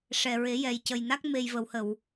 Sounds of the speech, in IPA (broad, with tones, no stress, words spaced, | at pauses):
ʂɛ˨˩ɹe˨˩˦ jɛ˨˩jcə˨˩jna˦˥k̚ me˨˩jvə˨˩˨whə˨˩˨w